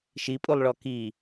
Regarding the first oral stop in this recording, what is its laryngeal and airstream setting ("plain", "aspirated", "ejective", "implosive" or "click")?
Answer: ejective